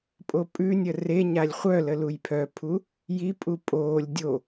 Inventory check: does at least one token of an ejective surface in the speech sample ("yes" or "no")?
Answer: yes